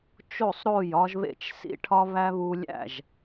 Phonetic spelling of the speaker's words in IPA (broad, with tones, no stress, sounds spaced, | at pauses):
t͡ʃ o˥˩ sˤ ɾ o˥˩ j ɒ˦ ʒ β ḛ˥˩ t͡ʃ s ḭ˦ ʈʰ ɒ˦ β æ˦ β u˦ lʲ æ̰˥˩ ʒ